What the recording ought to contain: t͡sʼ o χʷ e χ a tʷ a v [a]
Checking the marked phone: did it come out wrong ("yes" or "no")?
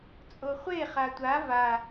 no